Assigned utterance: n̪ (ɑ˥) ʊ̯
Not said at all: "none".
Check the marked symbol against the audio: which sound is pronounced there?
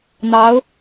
ɑ˧˥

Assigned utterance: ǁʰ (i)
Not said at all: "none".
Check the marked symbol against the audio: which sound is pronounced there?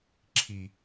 i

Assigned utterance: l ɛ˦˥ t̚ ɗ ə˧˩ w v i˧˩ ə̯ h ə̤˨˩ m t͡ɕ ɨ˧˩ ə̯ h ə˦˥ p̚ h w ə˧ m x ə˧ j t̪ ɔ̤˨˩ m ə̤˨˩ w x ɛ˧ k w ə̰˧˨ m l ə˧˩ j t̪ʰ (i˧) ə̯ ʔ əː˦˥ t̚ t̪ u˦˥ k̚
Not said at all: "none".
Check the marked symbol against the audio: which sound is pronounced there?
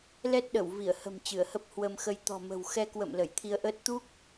i˧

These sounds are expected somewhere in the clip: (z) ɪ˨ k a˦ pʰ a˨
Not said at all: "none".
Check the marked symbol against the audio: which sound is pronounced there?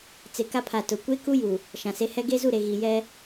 t͡s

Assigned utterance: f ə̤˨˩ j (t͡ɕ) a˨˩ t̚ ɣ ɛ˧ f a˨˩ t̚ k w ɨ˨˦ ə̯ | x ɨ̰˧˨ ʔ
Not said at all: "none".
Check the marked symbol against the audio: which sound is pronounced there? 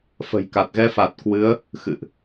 k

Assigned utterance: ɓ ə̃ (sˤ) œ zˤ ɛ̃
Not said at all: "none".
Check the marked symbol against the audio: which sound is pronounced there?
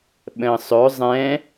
sˤ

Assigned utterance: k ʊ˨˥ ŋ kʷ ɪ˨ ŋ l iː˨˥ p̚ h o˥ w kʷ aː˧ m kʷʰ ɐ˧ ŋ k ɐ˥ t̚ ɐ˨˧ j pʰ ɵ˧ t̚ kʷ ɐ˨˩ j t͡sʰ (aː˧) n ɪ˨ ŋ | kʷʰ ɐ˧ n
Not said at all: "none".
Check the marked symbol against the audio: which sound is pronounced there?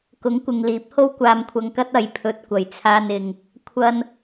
aː˧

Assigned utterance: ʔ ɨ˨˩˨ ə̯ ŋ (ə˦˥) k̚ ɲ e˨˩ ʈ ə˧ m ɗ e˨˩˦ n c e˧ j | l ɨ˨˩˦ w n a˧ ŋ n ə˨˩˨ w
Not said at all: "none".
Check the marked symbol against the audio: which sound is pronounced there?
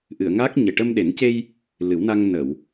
a˦˥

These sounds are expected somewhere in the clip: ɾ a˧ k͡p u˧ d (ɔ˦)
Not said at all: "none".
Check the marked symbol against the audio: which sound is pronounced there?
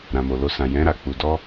ɔ˦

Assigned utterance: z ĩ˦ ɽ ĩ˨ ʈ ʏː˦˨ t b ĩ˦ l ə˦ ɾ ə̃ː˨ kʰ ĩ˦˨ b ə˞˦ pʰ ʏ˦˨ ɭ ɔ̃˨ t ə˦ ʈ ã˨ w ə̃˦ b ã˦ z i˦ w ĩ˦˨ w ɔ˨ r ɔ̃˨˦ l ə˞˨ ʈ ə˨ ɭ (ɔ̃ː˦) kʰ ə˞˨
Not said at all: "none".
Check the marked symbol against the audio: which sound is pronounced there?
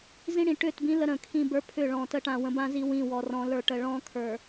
ɔ̃ː˦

